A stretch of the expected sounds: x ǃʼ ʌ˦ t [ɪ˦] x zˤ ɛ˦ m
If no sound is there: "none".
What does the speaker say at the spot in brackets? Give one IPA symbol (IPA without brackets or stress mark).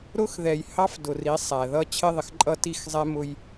i˦